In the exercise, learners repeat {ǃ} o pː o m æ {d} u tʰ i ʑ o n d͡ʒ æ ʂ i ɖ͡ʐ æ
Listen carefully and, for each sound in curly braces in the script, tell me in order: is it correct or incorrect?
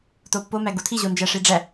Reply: incorrect, incorrect

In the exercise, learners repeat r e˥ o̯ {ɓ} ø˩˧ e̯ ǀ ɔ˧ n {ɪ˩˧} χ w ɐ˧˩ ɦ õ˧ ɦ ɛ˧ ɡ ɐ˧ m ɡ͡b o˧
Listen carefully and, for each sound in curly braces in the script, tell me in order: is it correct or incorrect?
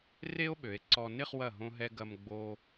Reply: correct, incorrect

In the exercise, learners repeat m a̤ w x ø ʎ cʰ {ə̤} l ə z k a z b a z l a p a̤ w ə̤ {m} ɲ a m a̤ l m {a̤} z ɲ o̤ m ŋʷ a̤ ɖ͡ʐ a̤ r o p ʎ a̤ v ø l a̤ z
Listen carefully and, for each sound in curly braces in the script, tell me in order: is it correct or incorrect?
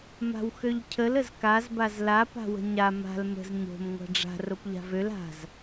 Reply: incorrect, incorrect, incorrect

